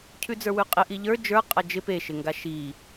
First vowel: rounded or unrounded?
rounded